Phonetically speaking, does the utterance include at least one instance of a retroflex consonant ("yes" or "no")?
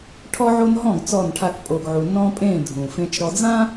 yes